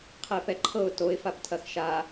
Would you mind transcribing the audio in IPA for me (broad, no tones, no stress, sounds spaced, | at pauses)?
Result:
qʰ ɛ p ɛ ǃʰ ɤ ʊ̯ t o ɪ̯ f a p tʰ ɐ x ʃ a